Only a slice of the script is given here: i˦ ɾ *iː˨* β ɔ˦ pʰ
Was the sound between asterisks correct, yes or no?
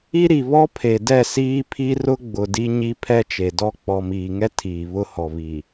no